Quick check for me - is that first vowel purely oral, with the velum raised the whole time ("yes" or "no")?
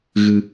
yes